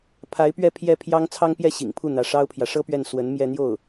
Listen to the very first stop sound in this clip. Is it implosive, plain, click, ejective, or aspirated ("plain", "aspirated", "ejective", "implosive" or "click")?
aspirated